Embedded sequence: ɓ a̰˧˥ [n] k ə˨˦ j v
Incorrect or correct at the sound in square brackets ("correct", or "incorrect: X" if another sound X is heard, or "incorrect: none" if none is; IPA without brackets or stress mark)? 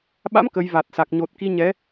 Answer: incorrect: m